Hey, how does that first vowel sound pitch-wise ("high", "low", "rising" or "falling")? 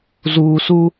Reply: low